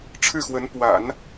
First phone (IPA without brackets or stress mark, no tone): ʈ͡ʂʰ